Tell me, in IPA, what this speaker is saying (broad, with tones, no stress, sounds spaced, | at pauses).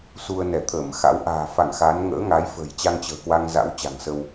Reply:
s u˧ ə̯ n ɛ˧˩ t̪ʰ əː˧˩ m x a̰˧˥ w ʔ a̤ː˨˩ f a˧˩ ŋ x a˨˦ n ŋ ə̰ː˧˥ ŋ a˨˦ j f ə̤˨˩ j t͡ɕ a˧ ŋ t͡ɕ ə̤ː˨˩ k w a˧ ŋ z a̰˧˥ w t͡ɕ a̤˨˩ ŋ s ə˧ w